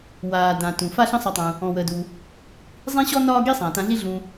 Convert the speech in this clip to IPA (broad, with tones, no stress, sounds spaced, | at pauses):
w aː˩ d ã˩ t ũ˩ f a˥ ɬ ə̃˥ sˤ a˧ tˤ ũ˩ | ɔ̃˩ w əː˩ d u˩ | zˤ ĩ˥ ɕ ɔ˥ n ɒː˥ ɡ i˥ sˤ ãː˩ t ã˧ ɮ i˥ ɮ ũ˧